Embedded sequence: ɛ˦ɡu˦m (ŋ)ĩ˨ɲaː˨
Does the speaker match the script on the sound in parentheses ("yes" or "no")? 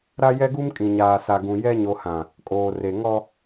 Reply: no